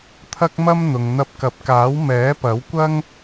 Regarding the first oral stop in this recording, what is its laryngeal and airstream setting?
aspirated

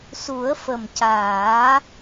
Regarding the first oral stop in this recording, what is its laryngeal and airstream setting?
plain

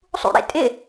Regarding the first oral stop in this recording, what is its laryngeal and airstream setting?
ejective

